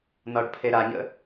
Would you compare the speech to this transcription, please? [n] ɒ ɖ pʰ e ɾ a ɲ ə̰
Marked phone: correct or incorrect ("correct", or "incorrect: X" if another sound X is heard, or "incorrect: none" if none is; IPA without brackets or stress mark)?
correct